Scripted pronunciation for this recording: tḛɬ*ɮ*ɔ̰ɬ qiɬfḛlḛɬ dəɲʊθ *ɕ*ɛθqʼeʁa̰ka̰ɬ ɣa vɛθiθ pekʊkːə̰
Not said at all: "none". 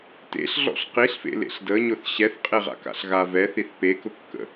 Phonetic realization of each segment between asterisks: ɮ, ɕ

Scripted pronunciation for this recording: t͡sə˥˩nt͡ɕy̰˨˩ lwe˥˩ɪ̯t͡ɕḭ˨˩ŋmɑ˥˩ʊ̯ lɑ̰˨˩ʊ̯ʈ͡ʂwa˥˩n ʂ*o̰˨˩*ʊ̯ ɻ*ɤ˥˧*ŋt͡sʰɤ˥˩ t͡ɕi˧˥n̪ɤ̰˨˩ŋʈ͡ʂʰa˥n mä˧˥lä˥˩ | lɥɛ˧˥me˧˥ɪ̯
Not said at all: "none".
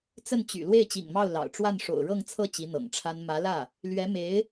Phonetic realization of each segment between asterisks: o̰˨˩, ɤ˥˧

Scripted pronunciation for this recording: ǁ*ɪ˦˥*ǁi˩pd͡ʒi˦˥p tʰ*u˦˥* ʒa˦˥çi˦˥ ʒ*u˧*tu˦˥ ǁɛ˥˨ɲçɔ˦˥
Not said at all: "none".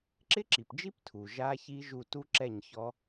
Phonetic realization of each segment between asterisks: ɪ˦˥, u˩, u˧

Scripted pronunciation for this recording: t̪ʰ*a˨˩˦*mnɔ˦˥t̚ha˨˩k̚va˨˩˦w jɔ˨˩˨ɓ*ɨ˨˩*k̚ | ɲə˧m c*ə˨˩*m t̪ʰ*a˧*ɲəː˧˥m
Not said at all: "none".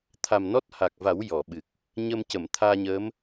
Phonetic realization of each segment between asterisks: a˨˩, ɨ˨˩, ə˨˩˨, aː˧

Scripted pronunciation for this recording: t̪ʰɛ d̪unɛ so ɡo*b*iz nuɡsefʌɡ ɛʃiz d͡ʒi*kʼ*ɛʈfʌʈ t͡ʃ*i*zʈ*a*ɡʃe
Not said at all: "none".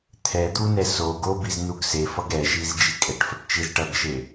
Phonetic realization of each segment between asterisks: b, kʼ, i, ʌ

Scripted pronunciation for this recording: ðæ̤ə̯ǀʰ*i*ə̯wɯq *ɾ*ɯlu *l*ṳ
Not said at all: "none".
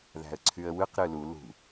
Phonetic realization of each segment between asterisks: y, ɾ, l

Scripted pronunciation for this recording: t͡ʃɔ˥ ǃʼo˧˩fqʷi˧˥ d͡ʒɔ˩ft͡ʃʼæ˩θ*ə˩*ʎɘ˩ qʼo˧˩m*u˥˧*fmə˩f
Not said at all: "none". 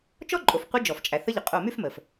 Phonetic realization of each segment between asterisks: ə˧˥, y˥˧

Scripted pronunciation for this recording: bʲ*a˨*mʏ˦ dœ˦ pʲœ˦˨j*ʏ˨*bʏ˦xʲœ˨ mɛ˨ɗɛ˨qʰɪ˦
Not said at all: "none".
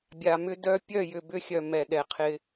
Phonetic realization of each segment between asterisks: a˨, ʏ˨

